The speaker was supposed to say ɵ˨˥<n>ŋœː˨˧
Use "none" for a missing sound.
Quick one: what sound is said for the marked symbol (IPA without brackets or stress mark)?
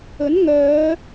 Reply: n